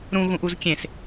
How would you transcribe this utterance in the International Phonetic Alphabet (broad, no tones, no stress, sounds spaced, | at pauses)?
ɾ ũ ɣ ũ ʔ u z kʲ ẽ s